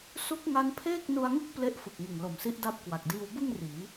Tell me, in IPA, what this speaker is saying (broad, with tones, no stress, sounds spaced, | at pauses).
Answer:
s u˦˥ k̚ ŋ a˦˥ n pʰ eː˥˩ k̚ n u˧ a̯ ŋ ɯ˦˥ k̚ p l e˦˥ ʔ f ɯ˨˩ k̚ ŋ ɯ˨˩ ŋ l o˨˩ m s i˦˥ ʔ d a˥˩ p̚ k w a˨˩ k̚ d iː˧ w b ɯ˥˩ ŋ r iː˩˦